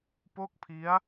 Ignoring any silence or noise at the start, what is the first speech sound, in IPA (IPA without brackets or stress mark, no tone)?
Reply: p